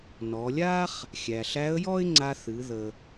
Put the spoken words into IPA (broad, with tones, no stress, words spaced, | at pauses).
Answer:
nɔ˩˧lʲa˥χ | xʲæ˩ ɬæ˧˥ə̯jɔ˥ɪ̯ ŋ͡ǀa˧θɨ˩˧ ðə˩